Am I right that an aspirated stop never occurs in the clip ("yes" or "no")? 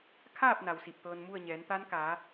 no